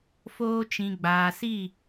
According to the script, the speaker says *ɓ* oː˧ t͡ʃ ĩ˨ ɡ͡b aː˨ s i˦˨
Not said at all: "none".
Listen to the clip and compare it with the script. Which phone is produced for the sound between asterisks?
f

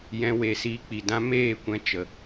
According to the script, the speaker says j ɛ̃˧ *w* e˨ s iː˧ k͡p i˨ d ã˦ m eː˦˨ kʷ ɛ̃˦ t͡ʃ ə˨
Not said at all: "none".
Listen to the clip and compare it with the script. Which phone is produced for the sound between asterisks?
w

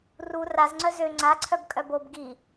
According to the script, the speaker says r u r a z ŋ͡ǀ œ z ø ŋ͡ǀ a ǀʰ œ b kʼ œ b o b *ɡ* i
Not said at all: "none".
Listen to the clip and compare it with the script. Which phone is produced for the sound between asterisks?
ɡ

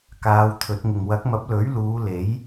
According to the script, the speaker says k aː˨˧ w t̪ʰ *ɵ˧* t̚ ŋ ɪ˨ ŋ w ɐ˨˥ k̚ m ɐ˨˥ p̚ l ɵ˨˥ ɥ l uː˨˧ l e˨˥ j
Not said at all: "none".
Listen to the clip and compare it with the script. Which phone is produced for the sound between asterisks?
ɵ˨˥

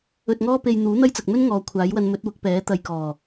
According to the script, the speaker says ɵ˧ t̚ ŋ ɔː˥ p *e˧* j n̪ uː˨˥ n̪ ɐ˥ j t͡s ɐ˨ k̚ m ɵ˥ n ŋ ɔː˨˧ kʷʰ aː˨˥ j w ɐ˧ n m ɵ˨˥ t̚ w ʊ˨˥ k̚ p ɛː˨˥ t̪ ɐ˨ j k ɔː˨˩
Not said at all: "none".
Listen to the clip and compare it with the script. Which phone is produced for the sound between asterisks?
e˧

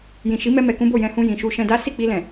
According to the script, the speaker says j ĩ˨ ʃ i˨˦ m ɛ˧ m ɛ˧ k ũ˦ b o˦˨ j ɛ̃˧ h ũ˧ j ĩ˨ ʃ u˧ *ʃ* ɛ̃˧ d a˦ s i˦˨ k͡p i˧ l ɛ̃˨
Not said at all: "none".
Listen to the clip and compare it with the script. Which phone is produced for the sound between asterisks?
ʃ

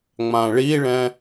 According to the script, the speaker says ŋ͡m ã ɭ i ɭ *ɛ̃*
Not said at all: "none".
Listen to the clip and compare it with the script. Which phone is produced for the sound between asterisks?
ɛ̃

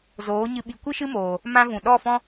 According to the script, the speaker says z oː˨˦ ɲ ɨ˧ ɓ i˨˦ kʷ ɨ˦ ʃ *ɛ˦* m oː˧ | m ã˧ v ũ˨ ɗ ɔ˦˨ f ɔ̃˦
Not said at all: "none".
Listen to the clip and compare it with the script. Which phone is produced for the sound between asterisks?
ɨ˦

